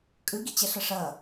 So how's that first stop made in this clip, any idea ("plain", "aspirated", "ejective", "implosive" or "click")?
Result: ejective